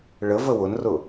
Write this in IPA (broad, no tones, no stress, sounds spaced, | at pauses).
ɭ ə v ə w ʊ n r ʊ